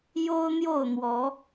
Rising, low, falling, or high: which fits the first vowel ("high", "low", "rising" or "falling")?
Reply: high